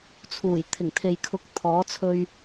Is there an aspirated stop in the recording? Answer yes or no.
yes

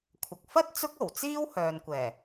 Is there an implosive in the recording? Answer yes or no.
no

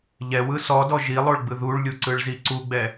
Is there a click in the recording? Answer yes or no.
yes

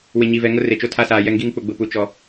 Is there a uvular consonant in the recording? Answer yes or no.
no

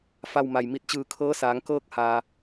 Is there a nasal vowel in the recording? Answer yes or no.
no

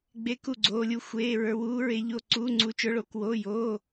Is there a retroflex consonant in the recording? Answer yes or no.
yes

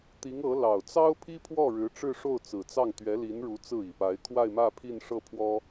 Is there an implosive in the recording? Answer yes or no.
no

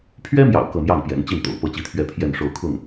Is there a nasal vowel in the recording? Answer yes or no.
no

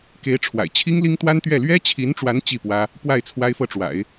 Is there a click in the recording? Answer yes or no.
no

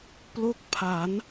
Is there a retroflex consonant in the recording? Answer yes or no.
no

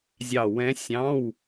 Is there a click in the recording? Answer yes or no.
no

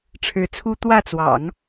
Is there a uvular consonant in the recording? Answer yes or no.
no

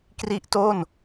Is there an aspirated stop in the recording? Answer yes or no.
no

